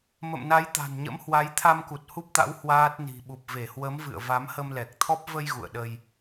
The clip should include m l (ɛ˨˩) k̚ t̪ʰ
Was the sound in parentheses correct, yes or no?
yes